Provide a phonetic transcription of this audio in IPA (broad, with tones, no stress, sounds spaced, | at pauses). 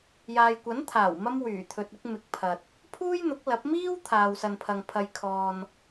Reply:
j aː˨ j kʷ ɐ˨˥ n t̪ʰ aː˨˩ w m ɐ˧ m w yː˨˩ t̪ʰ ɵ˨ t̚ ɪ˧ k̚ m ɪ˨ k̚ pʰ ɐ˨ t̚ | pʰ uː˥ j n̪ ʊ˨˥ k̚ l ɐ˨˥ p̚ m iː˥ w t̪ʰ aː˨ w s ɐ˨ n pʰ ɐ˨ ŋ pʰ ɐ˨ j kʰ ɔː˨ n